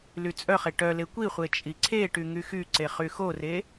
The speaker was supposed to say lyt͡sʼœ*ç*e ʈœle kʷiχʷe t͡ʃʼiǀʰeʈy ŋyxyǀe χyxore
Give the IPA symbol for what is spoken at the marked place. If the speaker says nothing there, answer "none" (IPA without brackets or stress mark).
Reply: χ